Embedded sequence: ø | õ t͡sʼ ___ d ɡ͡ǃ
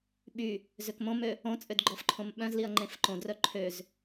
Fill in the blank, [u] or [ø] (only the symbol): ø